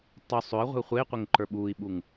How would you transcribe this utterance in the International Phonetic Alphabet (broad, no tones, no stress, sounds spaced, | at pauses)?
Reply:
tˤ ʉ sˤ ø i̯ ʁʷ i̤ u̯ χʷ e i̯ qʷ e ŋ ǃ ə˞ ɓ uː i̯ ɓ u ŋ